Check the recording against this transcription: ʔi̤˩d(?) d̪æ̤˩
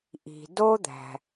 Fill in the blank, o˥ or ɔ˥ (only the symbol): o˥